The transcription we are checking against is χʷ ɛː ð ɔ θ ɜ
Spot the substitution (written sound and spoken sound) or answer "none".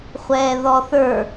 ɜ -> ə˞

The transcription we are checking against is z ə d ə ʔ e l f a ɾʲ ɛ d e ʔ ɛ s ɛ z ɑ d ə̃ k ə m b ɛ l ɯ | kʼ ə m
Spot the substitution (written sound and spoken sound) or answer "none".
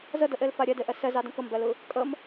none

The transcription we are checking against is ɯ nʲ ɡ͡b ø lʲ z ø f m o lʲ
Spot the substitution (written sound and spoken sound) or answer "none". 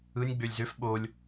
m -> ɓ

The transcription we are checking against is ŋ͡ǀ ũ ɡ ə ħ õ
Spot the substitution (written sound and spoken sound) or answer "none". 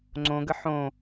ũ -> õ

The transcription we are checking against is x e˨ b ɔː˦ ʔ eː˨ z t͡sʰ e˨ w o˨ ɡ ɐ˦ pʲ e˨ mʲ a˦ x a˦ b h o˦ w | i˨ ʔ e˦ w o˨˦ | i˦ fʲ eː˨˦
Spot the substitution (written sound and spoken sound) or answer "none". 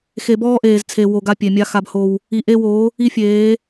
ɐ˦ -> a˦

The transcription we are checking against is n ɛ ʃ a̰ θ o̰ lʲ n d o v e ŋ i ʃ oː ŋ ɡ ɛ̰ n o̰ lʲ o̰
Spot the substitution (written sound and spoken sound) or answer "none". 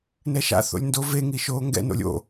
none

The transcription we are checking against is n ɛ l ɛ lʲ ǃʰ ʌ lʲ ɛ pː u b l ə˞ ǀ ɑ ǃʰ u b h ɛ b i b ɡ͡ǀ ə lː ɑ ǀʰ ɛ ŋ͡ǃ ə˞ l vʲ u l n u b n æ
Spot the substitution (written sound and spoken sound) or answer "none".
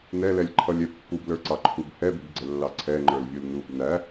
none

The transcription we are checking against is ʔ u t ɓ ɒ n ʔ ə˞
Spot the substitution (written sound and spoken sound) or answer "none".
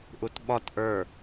n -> t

